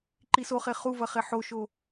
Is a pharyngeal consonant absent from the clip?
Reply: no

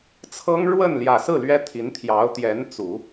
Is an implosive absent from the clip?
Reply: yes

